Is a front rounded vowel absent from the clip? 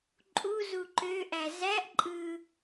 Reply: no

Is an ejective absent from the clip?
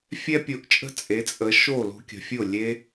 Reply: no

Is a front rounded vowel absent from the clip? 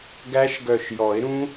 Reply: no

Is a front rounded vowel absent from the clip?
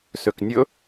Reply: no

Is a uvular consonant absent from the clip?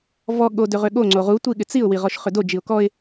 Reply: no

